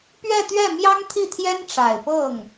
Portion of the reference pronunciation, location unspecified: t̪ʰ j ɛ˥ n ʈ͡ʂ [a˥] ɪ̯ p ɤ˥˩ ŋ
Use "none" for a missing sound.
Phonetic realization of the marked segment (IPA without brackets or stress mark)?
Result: a˨˩